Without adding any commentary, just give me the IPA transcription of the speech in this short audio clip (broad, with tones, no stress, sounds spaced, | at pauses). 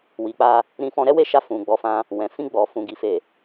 w i˨ k͡p a˧ | ɾ ĩ˧ f ɔ̃˧ ɾ ɛ˦ w e˦˨ ʃ a˧ f ũ˨ ɡ͡b ɔ˨˦ f ã˧ | w ɛ̃˨ f ĩ˧ ɡ͡b ɔ˨ f ũ˨ ɡ i˨ f e˨